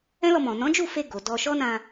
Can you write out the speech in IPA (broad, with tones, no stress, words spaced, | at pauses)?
ɛ̃˦lɔ˧mɔ̃˨ nɔ̃˨˦d͡ʒu˦˨fe˧ ɡo˨dɔ˧ ʃɔ˦nã˧